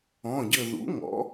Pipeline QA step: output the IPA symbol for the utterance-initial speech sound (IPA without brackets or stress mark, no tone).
ɔ̃